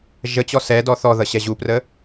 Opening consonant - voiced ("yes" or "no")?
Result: yes